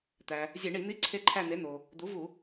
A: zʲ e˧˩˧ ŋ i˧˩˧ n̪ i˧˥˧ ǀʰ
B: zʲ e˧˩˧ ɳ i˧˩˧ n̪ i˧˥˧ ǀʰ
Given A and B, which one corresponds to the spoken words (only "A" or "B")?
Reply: B